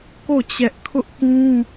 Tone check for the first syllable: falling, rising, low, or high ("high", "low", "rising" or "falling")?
falling